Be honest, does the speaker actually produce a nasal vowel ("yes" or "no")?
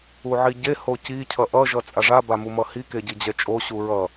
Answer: no